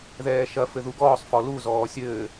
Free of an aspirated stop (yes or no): yes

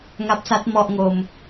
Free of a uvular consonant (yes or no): yes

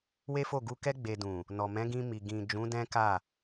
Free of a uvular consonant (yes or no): yes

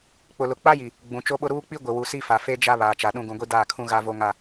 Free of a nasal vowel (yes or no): no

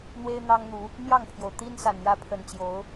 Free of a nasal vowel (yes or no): yes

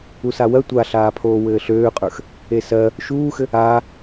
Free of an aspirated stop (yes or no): no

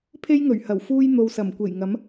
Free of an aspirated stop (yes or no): no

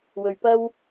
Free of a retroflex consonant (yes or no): yes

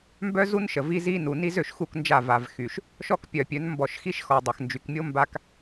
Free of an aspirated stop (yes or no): yes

